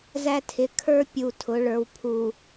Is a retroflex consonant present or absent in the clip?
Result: present